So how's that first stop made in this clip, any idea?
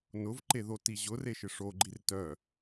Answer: click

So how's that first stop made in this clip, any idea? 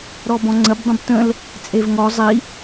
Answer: plain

